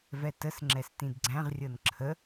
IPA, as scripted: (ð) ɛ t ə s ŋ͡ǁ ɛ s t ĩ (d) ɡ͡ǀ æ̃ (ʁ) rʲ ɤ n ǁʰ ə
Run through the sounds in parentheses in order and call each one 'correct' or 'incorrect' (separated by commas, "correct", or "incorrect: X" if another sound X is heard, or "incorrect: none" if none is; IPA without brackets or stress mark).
incorrect: v, correct, correct